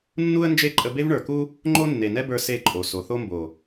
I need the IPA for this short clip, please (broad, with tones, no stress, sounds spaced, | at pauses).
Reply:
nː u˦ ə̯ n d͡ʒ e˦ ǃʼ ə˧ b e˦ v ɳ ə˞˨ k u˦ | ŋ͡ǃ o˦ nː e˨ n ɛ˦ b ə˞˧ s e˦˨ ǃʼ o˨ s o˨ θ o˦ m b o˨